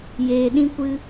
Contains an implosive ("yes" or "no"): yes